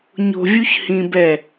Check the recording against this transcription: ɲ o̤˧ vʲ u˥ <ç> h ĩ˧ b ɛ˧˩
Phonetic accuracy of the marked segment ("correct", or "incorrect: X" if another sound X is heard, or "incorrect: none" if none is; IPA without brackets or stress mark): correct